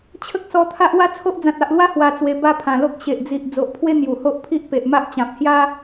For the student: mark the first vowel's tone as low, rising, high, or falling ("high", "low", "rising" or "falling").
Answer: high